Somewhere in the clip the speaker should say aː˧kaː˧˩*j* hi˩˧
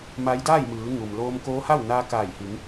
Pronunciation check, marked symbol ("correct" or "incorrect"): correct